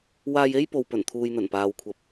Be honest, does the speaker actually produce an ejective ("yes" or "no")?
no